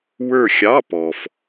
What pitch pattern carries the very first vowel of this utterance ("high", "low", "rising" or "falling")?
falling